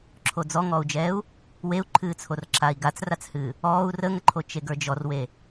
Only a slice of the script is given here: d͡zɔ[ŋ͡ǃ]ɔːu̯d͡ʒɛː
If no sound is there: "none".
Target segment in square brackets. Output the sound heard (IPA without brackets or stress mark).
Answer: ŋ